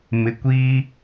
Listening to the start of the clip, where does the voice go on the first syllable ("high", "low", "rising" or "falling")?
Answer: low